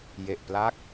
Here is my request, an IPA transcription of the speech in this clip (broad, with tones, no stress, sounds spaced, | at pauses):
j e˨˩ ʔ p l a˦˥ k̚